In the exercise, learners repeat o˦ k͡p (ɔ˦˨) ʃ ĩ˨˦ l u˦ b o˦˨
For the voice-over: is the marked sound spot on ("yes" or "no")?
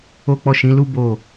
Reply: yes